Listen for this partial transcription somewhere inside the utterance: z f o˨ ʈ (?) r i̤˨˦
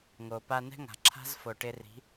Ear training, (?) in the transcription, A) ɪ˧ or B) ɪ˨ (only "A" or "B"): A